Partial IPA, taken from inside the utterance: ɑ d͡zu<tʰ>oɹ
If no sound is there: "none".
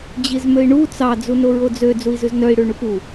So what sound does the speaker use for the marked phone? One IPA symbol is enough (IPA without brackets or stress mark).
n